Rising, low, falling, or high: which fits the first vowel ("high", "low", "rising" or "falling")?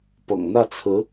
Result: low